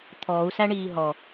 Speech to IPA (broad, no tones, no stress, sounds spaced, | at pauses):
t̪ʰ ɔː u̯ s æ ɳ iː ɦ ɔ